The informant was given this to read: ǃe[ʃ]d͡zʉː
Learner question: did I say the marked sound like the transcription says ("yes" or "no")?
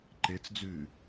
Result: no